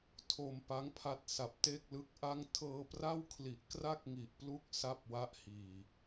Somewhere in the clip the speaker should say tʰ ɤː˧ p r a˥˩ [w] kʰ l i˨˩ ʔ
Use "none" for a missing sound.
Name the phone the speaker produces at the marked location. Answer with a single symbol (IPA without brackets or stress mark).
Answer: w